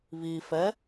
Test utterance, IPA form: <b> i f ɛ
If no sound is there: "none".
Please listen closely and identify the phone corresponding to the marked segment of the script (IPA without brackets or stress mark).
β